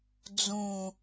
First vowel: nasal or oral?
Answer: nasal